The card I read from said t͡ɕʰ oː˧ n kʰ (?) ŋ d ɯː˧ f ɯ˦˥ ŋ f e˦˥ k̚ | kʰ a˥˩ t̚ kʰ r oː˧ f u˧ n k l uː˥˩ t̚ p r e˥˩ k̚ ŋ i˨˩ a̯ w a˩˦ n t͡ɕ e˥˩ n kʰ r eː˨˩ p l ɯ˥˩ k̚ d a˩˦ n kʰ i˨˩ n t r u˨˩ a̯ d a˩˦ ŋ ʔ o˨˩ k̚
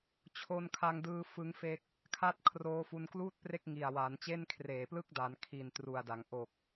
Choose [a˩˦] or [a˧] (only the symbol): a˧